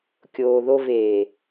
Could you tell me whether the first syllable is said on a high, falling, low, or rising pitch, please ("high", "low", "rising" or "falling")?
low